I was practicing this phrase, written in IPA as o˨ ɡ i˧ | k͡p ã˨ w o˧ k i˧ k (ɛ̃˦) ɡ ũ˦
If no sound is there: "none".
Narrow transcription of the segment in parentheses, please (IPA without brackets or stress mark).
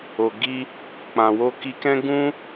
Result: ɛ̃˦